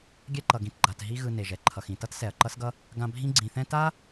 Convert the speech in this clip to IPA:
ɡʲ ɛ˦ ǃ ʌ˨ ɡ ĩ˨ t ɡ͡ǃ a˨ t ɦ i˦ ɣ ɯ˨ n e˩ ʒ ɛ˩ ǃʰ ʌ˨ x ĩ˨ t ʌ˥ t s ɛ˨ ɐ̯ ǃ ʌ˥ s ɡ ʌ˥ | ɡ ã˦ bʱ ĩ˥ ɡ͡ǀ ĩ˨ θ ɛ̃˦ t a˥

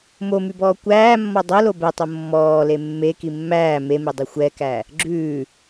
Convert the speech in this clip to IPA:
m o m y b ɔː kʷ æː mː ɔ dˤ o l o b ɛ tˤ o mː ɔː l e mː e k i mː æː m e m e dˤ i xʷ ɛ k æ | ɡ͡ǁ ʉː

